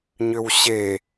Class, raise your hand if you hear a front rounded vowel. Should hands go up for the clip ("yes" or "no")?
yes